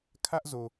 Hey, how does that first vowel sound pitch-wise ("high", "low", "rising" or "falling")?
high